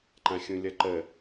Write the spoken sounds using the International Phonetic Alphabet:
ǃ ã xʲ ũ lʲ ʌ ǃ ə

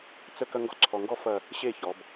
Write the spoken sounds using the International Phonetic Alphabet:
t͡s ə˥˧ k ɐ˥ ŋ ɡ ɔ˥ ǀʰ ɔ˧ ŋ ɡ ɔ˥ f ɐ˥˧ | ɕ e˥˧ ç ɔ˩˧ b

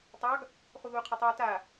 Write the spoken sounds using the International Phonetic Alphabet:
tˤ ɑ ɡ | χ u ð uː qʰ ɛ tˤ u ə̯ t a

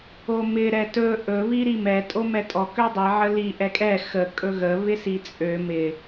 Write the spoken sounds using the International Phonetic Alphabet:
o m ɪ ɾ ɛ t ɵ ʔ ɵ β i ɾ i m ɛ tʼ o m ɛ tʼ ɔ k ø dˤ i ʕ ə l i ʔ ɛ kʼ ɛ x ə kʼ ɵ ɣ ə β ɪ s i t͡sʼ ø m ɪ

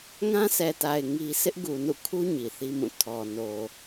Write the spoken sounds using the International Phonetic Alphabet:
ŋ ã˦ s ɛ˨ t a˨ ɪ̯ ŋ i˦ sʰ ɪ˦ ʔ ɡ u˨ n ṵ˦˨ kʰ u˦ ɲ i˨ θ i˦ m ũ˦˨ tʰ ɔ˨ n o˨

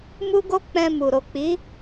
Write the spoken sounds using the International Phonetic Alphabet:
m u˦ ɡ o˦ k͡p ɛ̃˧ m u˨ ɾ o˨ k͡p i˨˦

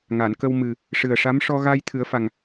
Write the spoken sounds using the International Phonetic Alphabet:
ŋ a˨˩˨ n k ə˧ w m ɨ˨˩ | ʂ ɨ˨˩ ə̯ ʂ a˧˥ m ʂ ɔ˧ ɣ a˧ j t̪ʰ ɨ˨˩˦ ə̯ f a˨˩ ŋ

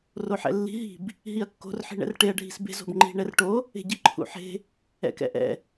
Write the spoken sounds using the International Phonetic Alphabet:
r o ħ ɛ̰ lː i̤ ɦ i̤ b | ɦ i ɐ̯ kː o̤ r ħ i̤ ɳ ɛ̰ r ʈ e ɐ̯ ɖʱ i̤ s b e̤ z o̤ b ŋ͡ǃ i̤ ɳ ɛ r ʈ o | e̤ ɟ i ǃʰ ṵ ħ e̤ | ɛ̰ k ɛ̰ ʔ ɛ̰

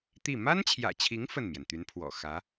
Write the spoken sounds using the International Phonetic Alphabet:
t̪ i˥˩ m a˥ n t͡ɕʰ j ä̰˨˩ t͡ɕʰ i˧˥ ŋ f ə˥˩ n m j ɛ˩ n t̪ y˧˥ n pʰ w ɔ̰˨˩ x ä˧˥

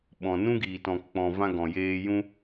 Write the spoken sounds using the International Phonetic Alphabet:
ɓ ɔ̃˨ n ũ˦ ɡ iː˨ t ɔ̃˨ k k͡p ɔ̃˨ v ã˧ ɡ ɔ̃˨ j eː˧ j ũ˧

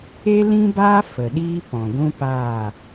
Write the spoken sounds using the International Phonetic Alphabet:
e˦ l ĩ˦ b aː˦ f ə˨ ɗ iː˦ p ɔ̃˨ ɡʷ ũ˦ p aː˦˨

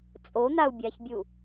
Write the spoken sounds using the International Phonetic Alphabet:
t͡sʼ o n̪ a u̯ bʲ a ç bʲ u

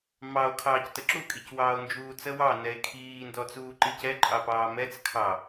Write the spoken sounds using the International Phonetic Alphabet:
m ɑ o̯ kʰ ɑː c t ə ǁ u kʼ i c w ɑː o̯ n d͡ʒ uː t͡s ə w ɑ n ɛ e̯ kʰ iː n d ɔ t͡s uː ǃ i c ɛ ǃʼ ɑ p ɑː m ɛ t͡s kʰ ɑ

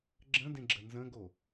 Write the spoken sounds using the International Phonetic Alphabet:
ɡ͡ǁ ə̃ d ẽ ɡ͡ǁ ə n z ə̃ ɡ o

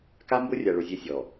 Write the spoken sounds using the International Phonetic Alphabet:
k a˦ m b ʊ˦ rʲ a˨ ɭ ʊ˨ zʲ e˦ sʲ ɔ˨

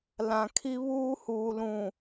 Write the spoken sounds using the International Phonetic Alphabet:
l ã˨ kʰ i˦ β uː˦ h uː˨ l ũ˨

